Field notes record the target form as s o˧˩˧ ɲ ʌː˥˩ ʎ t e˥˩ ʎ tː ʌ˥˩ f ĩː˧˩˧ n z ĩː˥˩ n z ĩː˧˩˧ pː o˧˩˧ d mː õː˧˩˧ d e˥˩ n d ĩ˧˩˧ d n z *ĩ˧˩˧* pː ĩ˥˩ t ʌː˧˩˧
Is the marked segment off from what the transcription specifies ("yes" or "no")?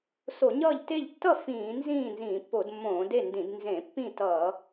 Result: yes